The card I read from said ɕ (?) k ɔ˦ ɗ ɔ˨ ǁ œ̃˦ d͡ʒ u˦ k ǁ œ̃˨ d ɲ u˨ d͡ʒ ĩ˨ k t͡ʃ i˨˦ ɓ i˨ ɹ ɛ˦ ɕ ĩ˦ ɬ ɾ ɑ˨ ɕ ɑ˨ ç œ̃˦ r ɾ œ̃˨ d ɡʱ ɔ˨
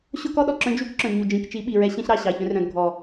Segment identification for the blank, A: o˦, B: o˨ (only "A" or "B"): A